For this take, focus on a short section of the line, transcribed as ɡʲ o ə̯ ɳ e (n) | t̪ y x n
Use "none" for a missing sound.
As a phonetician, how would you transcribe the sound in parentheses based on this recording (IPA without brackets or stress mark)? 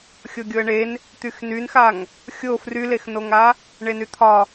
n